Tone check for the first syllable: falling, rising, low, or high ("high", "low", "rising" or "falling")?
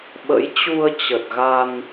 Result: rising